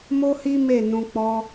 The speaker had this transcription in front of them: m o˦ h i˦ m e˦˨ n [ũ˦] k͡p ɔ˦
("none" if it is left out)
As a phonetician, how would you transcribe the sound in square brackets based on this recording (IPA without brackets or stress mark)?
ũ˧